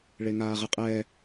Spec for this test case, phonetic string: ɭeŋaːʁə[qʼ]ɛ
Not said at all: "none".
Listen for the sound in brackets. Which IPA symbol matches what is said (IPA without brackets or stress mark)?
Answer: qʼ